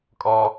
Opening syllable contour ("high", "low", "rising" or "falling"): high